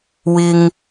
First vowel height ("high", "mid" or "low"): high